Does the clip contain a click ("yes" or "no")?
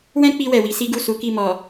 no